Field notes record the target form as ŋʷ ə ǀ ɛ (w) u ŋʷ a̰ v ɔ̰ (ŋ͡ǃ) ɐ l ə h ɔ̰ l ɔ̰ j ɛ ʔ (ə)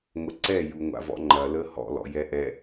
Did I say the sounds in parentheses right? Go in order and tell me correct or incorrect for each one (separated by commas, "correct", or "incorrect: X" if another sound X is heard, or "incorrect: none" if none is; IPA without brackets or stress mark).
incorrect: j, correct, incorrect: ɛ